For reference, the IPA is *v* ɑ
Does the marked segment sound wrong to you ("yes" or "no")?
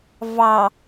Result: no